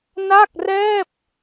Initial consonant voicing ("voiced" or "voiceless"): voiced